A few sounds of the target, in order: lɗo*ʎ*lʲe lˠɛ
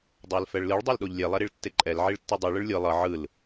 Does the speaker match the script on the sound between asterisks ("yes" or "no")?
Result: yes